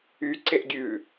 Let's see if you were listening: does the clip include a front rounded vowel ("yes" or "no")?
yes